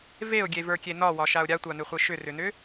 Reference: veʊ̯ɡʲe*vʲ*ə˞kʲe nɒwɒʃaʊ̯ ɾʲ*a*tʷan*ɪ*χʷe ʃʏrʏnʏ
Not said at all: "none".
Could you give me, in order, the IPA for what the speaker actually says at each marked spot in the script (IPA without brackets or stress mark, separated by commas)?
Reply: v, a, ʏ